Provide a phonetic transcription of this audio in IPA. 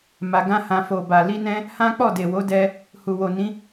m a˧ ɡ ã˦ h ã˧ f o˨ b a˨ l i˧ n ɛ̃˧ | h ã˦ k͡p ɔ˦˨ d e˨ w o˨˦ d ɛ˧ | h u˨ w o˨ n ĩ˨˦

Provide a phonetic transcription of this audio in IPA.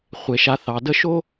χʷ e˩˧ ʃ a˧ θ ɑ˩˧ d ə˥˧ ʃ o˥

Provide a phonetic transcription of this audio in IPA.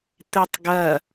t̪ e tˤ ɡ ɐ

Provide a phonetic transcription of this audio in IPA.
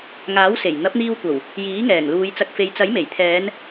ŋ aː˨˥ w s e˨˩ j n̪ ɐ˨˥ p̚ n̪ iː˧ w kʷ ɐ˨˩ w | j iː˨˥ ŋ ɛː˨˩ ŋ l uː˨˧ j t͡s ɐ˨ k̚ f e˨ j t͡s ɐ˨˥ j m e˨˩ j t̪ʰ ɛː˨˧ n

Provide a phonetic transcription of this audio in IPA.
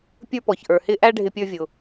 pʲ ə˞˥ p ɔ˩ ç ʔ ə˞˩ h ɪ˥ ʔ æ˥ ɖʱ ɪ˧ pʲ ə˞˧ vʲ ʊ˩

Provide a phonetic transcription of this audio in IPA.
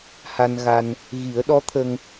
h a˧ n ɣ a˧ n | ɣ i˨˩˦ ə̯ ɗ ɔ˧˥ t̪ʰ ə˧ ŋ

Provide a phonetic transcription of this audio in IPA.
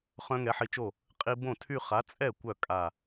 χ œ̃˦˥ ŋ ɛ˨˥ ħ i˧ t͡ʃ o˥˩ | qʼ i˧ b õ˥˩ tʰ y˥˧ χ a˨˥ t͡sʼ ɛ˥˩ kʷ œ˥˩ kʼ a˧˩

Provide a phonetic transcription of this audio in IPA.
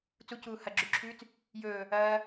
t͡s u c uː h ɐ ɡ͡ǁ ʉ ǁʰ ʉː t͡s | j ɵː | ɐː

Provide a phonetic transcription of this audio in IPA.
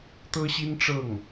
t̪ ɤ˥ ɕ i˥ n ʈ͡ʂ ɤ˥˩ ŋ

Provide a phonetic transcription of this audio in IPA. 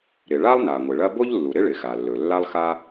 ɾ ɪ˩ ɭ a˥ lˠ n a˩ ŋʷ ɪ˩ ɭ ɐ˥ b o˥ ʎ lː u˩ ɾ ɪ˥ ɭ ɪ˩ x a˩ lː ɵ˩ lː a˥ lˠ x a˥

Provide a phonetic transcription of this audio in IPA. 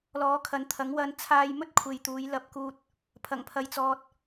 l ɔː˨˥ kʰ ɐ˨˧ n t̪ʰ ɐ˨˥ ŋ w ɐ˧ n t͡sʰ aː˥ j m ɵ˥ t̚ kʷʰ e˨ j t̪ uː˨˧ j l ɐ˥ p̚ k uː˥ t̚ | pʰ ɐ˨˩ ŋ pʰ ɐ˨ j t͡s ɔː˨ t̚

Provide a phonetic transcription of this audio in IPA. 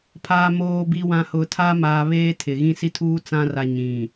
pʰ aː˨ m oː˨ b i˨ w ã˨ h ʊ˨ tʰ a˦ m aː˨ β eː˦ tʰ ɪ˨ ɣ ĩ˦˨ s i˦ tʰ uː˦ t͡s ã˦ r a˨ ɲ ĩ˨

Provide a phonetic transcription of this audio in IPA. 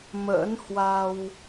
m ə̰ː˧˥ n h w a˧ w

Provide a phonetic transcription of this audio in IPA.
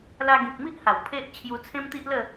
l a˧ ɡ ĩ˨ k̚ m i˦ ʔ h a˨˩ w pʰ e˦ ʔ t͡ɕʰ j u˧ t͡sʰ ẽ˦ m t̪ i˦ ʔ l ə˥˧

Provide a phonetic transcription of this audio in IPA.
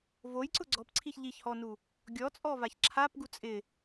v o j ǀ ʊ ɡ͡ǀ ɔ p ǀʰ i ç ʎ i ç h ɔ n u | ɡʲ ɔ t͡sʼ ɔ v a ç ǁʰ a p ɡ u t͡sʼ ɪ

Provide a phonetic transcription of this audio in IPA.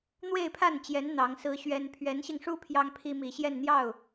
n̪ w e˥˧ ɪ̯ pʰ a˥˩ n t͡ɕ j ɛ˧˥ n n̪ ɑ˧˥ ŋ s ɹ̩˥ ɕ ɥ ɛ˥ n pʰ ɥ ɛ˧˥ n ɕ i˧ ŋ ʂ u˥ pʰ j ɑ˥ ŋ pʰ i˥ m i˨˩ ɕ j ɛ˥˧ n n̪ j ɑ˥˩ ʊ̯

